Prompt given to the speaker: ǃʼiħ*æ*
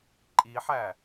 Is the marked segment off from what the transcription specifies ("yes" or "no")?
no